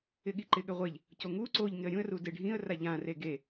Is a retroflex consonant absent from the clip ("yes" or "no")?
no